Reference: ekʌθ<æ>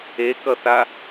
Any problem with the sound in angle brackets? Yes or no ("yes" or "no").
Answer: yes